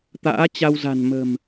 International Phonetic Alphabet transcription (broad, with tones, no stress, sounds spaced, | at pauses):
t̪ a̰ː˧˥ t͡ɕ a˧ w z a̤˨˩ n m ə̤˨˩ m